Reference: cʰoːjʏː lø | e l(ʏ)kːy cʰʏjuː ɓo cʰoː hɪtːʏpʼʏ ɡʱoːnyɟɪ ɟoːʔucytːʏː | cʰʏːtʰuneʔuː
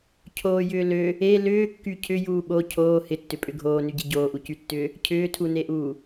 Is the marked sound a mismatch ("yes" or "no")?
yes